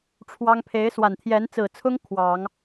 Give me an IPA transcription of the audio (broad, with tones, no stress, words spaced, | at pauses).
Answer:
ʈ͡ʂʰwɑ˥ŋ pʰe˧˥ɪ̯swa˨˩n t̪ʰjɛ˧˥nt͡sɹ̩˨˩t͡sʰʊ˥ŋ kʰwɑ˨˩˦ŋ